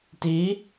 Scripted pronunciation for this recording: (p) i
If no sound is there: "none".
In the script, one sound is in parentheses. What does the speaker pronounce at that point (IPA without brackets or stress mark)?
t